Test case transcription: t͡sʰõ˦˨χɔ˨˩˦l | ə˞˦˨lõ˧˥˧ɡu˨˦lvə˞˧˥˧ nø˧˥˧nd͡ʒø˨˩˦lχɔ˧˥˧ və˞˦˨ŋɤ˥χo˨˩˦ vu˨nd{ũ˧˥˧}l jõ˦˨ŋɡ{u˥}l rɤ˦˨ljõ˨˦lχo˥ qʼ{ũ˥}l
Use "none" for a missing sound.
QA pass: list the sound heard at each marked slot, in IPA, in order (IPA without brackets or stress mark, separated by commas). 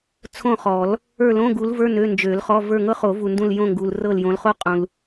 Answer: ũ˦˨, u˨, ũ˨